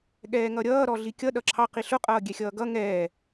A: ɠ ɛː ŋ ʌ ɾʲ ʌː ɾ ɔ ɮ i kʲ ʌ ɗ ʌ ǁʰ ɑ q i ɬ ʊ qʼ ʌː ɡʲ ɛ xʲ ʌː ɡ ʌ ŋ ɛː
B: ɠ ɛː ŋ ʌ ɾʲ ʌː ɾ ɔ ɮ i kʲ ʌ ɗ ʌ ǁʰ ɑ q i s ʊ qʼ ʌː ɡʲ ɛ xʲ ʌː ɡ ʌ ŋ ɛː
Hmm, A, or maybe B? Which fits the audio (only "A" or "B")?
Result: A